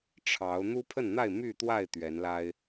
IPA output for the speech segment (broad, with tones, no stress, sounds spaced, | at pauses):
ʈ͡ʂʰ ɑ˨˦ ʊ̯ n̪ u˦ pʰ ə˥˨ n n̪ a˥˨ ɪ̯ m y˥˨ t̪ w a˥˨ ɪ̯ t̪ ɥ ɛ˨˦ n l a˦ ɪ̯